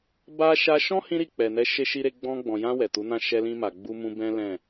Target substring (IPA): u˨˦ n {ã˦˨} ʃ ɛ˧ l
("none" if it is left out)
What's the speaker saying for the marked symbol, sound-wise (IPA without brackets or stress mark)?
ã˦˨